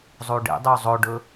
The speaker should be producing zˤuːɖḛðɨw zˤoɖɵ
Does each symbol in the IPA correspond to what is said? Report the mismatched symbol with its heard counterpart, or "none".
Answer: ð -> dˤ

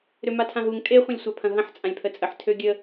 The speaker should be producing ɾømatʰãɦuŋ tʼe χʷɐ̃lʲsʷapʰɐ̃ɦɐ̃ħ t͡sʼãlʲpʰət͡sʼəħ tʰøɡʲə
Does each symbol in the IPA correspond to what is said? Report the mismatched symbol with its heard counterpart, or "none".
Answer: none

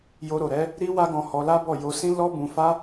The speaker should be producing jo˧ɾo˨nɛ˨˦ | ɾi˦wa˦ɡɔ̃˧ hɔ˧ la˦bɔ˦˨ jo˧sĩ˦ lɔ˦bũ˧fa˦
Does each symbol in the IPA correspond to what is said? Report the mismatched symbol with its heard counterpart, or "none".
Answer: n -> ɾ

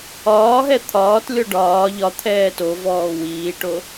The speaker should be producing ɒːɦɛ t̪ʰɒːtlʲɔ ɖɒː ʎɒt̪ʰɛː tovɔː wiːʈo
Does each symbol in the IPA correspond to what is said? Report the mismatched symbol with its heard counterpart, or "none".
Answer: none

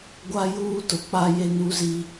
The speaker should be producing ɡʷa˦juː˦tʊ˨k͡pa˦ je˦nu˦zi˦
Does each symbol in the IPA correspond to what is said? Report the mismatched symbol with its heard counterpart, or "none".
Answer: none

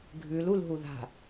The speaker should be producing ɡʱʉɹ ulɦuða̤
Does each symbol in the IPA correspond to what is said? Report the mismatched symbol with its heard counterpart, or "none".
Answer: ɹ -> l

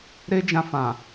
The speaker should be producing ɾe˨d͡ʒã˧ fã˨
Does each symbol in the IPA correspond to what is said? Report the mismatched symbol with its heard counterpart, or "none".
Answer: e˨ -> e˦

